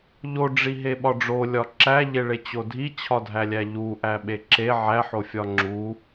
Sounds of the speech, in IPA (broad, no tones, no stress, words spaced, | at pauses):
ʎoɖ͡ʐiɦeɓɒ ɖ͡ʐolʲɒ ǁæʎeɭet͡ɕo dʱit͡ɕʰɒdʱælʲæ ʎuʔæɓe ǁe ʕæħofʲɒ ŋ͡ǁu